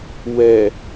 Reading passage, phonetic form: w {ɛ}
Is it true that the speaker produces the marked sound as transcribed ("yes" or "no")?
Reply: yes